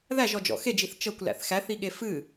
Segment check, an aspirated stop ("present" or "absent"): absent